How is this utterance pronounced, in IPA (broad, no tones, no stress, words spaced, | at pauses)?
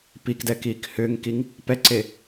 pikdɛːkiːk hʏːŋkiŋ | pɛǀe